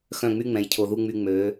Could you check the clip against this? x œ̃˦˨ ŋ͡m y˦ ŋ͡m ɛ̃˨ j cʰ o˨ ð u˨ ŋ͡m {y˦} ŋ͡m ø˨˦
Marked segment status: incorrect: y˨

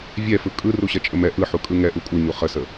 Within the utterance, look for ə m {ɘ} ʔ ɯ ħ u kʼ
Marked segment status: incorrect: ɛ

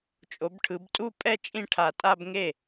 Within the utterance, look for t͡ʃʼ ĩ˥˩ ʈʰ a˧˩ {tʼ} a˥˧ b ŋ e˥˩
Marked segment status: correct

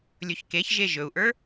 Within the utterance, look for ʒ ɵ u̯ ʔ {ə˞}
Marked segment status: correct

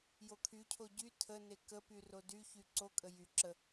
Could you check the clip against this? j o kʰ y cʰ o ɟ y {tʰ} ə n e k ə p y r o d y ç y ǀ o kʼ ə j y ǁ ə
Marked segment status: correct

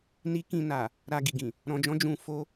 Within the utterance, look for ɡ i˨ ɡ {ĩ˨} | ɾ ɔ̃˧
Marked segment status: correct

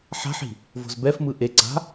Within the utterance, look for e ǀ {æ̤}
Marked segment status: incorrect: a̤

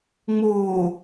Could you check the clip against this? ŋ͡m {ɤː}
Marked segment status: incorrect: oː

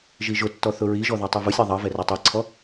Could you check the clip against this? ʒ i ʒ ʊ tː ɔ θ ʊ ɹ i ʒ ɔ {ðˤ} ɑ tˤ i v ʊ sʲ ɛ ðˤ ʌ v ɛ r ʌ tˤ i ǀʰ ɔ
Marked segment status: incorrect: ð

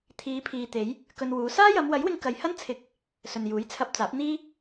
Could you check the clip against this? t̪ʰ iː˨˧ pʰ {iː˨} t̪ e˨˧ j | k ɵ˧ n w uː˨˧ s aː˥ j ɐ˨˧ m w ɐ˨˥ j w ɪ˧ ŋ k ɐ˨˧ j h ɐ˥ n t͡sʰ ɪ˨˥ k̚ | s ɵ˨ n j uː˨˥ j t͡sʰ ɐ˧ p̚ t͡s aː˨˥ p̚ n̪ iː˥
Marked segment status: correct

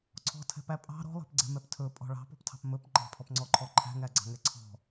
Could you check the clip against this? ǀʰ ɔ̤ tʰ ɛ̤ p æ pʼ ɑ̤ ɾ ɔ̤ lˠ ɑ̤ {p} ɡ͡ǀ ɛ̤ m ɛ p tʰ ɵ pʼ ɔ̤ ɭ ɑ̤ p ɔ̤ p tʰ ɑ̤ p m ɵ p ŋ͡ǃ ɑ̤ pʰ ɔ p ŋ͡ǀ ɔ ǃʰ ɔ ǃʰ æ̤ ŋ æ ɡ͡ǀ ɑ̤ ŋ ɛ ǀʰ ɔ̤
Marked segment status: correct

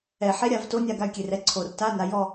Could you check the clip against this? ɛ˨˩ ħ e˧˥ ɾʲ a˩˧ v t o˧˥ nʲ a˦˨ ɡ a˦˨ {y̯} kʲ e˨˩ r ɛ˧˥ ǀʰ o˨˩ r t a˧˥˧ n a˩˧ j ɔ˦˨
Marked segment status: correct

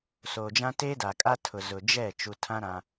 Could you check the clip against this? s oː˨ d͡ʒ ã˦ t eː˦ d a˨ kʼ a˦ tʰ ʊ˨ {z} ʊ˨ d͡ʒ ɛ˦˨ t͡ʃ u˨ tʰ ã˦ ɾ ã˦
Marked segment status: correct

